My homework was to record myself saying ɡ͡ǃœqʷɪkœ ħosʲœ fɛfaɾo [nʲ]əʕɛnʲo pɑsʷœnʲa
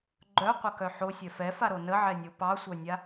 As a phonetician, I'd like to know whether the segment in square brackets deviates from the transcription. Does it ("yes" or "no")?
yes